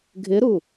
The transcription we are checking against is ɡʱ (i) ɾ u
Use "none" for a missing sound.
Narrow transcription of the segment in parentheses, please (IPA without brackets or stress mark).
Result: ɪ